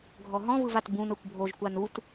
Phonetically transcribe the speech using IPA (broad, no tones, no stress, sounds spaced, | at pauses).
ɡʱ ɔ ɦ ɔ̃ v ɯ v a t b ũ n ɤ kʷ bʱ o ʒ kʷ a n u t